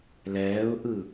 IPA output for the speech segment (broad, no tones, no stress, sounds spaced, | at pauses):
l ɛː ʊ̯ ʔ ɯ